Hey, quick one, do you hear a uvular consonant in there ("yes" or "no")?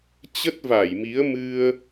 no